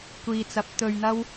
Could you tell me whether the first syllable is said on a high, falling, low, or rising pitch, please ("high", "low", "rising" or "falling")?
low